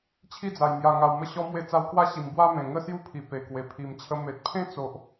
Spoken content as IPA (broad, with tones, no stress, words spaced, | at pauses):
t͡ɕʰi˥˧d͡za˨˩j mja˨˩ŋa˨˩wmə˧ ɕɔ˧ mwe˧t͡sa˧w kwa˦ ɕi˨˩mbwa˦mẽ˨˩ ŋə˥˧sju˥˧pʰi˨˩ pe˨˩kwe˨˩ pʰi˨˩mt͡ɕʰə˧ me˨t̚pʰẽ˦t͡so˨ʔ